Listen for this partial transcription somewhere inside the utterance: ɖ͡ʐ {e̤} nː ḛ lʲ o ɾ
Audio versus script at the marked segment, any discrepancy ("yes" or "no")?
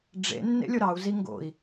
yes